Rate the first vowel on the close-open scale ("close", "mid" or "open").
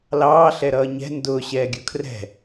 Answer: open